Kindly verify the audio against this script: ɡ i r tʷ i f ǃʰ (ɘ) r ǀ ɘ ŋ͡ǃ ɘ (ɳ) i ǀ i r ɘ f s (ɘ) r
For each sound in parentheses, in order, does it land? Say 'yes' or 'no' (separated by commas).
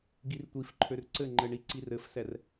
no, yes, no